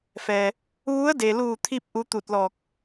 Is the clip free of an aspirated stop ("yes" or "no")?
no